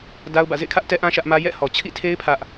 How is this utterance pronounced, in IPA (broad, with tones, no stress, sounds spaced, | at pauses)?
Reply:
d a˦ ʊ̯ b ä̰˦˨ z ḛ˦˨ ɪ̯ kʰ ä˦ ʔ t ɛ˦ ʔ ã˦ ʃ ä˦ ʔ m ä˦ j ɛ̰˦˨ h ɔ˨ t͡ɕʰ ḭ˦˨ tʰ e˦ ɪ̯ pʰ ä˦ ʔ